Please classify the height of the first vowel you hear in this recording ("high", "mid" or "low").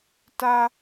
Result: low